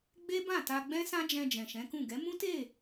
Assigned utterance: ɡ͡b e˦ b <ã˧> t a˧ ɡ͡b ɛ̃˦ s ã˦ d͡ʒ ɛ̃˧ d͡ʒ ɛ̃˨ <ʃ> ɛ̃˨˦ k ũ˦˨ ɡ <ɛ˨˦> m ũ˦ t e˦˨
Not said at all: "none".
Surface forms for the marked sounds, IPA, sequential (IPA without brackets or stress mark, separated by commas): ã˦˨, ʃ, ɛ˨˦